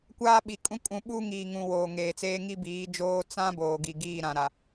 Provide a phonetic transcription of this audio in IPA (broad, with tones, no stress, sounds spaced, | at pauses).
kʷ aː˦ ɓ i˨ kʼ ũ˦ kʼ ũ˨ ɓ u˦ ŋ iː˨ ŋ ũ˨ w oː˨ ŋ eː˨ t͡s eː˦ ŋ i˦ b iː˨˦ d͡ʒ oː˦ t͡s ã˦ b oː˨ ɡ i˨ ɡ iː˦˨ ɾ ã˨ ɾ a˨